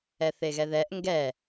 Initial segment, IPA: ɛ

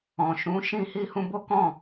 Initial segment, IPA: ɔ̃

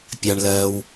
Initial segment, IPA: pʲ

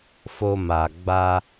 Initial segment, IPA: f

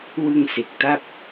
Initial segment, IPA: w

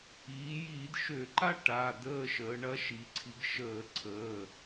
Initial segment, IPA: iː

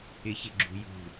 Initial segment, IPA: ɪ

